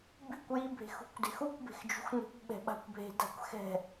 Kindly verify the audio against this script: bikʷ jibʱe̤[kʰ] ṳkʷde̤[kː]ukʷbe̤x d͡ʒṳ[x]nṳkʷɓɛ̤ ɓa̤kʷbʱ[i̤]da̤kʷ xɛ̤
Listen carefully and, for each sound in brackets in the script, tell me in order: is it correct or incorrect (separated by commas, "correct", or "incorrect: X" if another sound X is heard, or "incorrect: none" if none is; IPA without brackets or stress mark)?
incorrect: x, incorrect: x, correct, incorrect: e̤